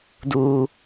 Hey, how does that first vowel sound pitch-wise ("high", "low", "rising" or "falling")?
high